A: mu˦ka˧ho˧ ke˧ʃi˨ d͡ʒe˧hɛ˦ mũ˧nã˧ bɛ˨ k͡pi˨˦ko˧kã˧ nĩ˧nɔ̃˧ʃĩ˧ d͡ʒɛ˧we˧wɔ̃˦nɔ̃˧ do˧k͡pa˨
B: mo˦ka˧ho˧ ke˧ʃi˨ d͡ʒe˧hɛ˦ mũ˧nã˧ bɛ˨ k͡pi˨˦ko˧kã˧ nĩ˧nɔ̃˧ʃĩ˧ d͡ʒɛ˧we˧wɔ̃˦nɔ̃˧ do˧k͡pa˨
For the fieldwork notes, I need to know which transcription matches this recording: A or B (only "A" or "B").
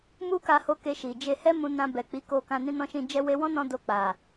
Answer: A